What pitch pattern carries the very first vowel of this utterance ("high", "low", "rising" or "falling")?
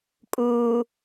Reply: low